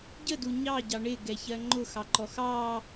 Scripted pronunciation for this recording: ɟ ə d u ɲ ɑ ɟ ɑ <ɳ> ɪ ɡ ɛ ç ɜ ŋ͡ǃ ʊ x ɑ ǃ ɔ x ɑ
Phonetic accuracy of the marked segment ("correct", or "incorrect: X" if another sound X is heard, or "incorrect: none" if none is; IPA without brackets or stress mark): correct